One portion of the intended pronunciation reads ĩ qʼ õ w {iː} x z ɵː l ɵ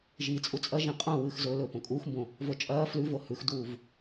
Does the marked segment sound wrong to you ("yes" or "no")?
yes